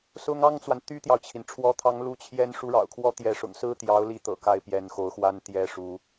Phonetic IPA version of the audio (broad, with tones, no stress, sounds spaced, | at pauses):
s ʊ˥ ŋ ɑ˥ ŋ t͡s w a˨ n t̪ y˥ t̪ j ɑ˨ ʊ̯ t͡ɕʰ i˩ n ʈ͡ʂʰ w ɔ˧˥ t̪ʰ ɑ˧˥ ŋ l u˧˥ t͡ɕʰ j ɛ˥ n ʂ u˥ ɻ ɑ̰˨˩ ʊ̯ kʰ w ɔ˥ t̪ j ɛ˧˥ ʂ ʊ̰˨˩ ŋ s ɹ̩˥ t̪ j ɑ˧˥ ʊ̯ l i˧˥ t̪ ɤ̰˨˩ k a˥˩ ɪ̯ p j ɛ˧˥ n x o˧˥ ʊ̯ x w a˥ n t̪ j ɛ˥˩ ʂ u˧˥